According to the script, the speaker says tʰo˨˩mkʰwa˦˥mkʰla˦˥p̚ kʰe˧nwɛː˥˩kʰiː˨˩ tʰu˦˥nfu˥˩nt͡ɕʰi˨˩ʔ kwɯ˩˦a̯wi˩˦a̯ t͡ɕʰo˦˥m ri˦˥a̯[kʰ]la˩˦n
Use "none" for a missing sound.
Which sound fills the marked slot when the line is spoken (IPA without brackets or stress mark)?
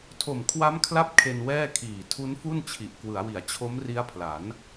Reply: pʰ